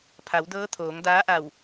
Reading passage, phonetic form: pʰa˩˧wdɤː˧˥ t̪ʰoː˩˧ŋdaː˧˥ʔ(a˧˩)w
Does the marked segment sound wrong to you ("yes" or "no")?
no